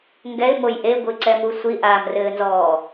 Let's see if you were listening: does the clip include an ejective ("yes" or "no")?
no